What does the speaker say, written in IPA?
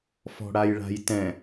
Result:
fɔ̤ɽajɭa̤jtɛ̃

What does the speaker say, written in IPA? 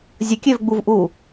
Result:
zʲəkʲøvɡ͡buvʔuː

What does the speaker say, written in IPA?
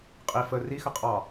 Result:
qʼi fə rixə qʼɑ

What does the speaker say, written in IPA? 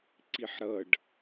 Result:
ǀiħɾʌɖ

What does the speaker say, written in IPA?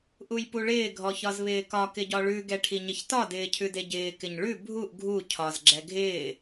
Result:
ʔujpuɭɪː ɡʱɔçɒzβɪːkɒ kɪɟɒɭʉ ɡɛʈʰiɲɪçtɒ dɪːcʰʉdeɟɪː kɪɲɭʉ bʱuʔ ɡʱu cʰɒz ɡ͡ǁɛɡʱɪː

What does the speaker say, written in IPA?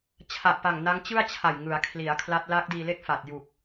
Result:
t͡ɕʰa˨˩ʔpa˨˩ŋ na˦˥ŋt͡ɕɯ˥˩a̯t͡ɕʰa˨˩j ŋɯ˩˦a̯kʰli˩˦a̯ kʰla˦˥t̚ laː˦˥k̚diː˧le˥˩k̚faː˨˩t̚ ju˨˩k̚

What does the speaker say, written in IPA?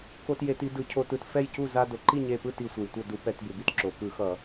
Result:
ko˧tje˧˩˧ti˧dɯ˧˩˧ cʰo˧tɯ˧˩t fɛ˥˩jcu˥˩ za˧ do˩ǃi˥˩ɲe˧˩pɯ˥˩ ti˧˩sʷe˩j tʷʌ˧˩ du˧˩˧pɛ˧˩˧t bɯ˩bi˧tǁo˩ kɯ˧˩˧xʌ˧˩˧

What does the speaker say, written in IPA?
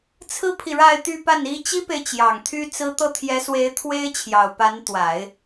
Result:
t͡sʰɹ̩˥pʰi˨ɻa˥˧ɪ̯t̪y˥˧ pa˥˩ni˥ t͡ɕi˥pe˨ɪ̯t͡ɕjɑ˨˩ŋ t̪ʰy˥t͡sɹ̩˥ t̪ɤ˥˩ t̪ʰjɛ˧˥swe˧˥ɪ̯ t̪ʰwe˥ɪ̯t͡ɕʰjɑ˨˩ʊ̯pa˧˥n t̪wa˨˩˦ɪ̯

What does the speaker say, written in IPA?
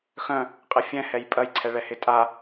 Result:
xœ̃ | qʼɪfʲɛ̃ hɛjpʼɐj ǀʰɛɭɛhɪtʼa

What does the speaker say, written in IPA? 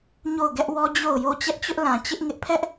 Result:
ɲo˦˨ʊ̯ɡɛ˦ʔwɔ˦ d͡ʑo˦˨ʊ̯jo˦˨ t͡ɕɛ˦ʔt͡ɕʊ˦ʔlã˨ t͡ɕɪ˦ʔŋɪ˦ʔ pʰɛ˦ʔ

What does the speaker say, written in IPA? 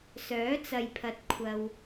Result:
sœː˨˥t͡sɐ˨jpʰɐ˨t̚ kʷʰɐ˨w

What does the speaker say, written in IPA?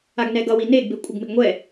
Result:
aɡnɛɡʌ wineɡ bekʷʼʌɡmɪɡŋʷɛ

